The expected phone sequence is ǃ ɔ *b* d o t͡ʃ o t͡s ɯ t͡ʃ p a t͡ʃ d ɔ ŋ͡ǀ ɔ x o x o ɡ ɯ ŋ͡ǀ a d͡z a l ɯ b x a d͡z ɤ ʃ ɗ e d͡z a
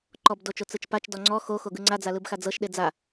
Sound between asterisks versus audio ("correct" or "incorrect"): correct